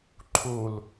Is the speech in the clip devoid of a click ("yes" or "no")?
no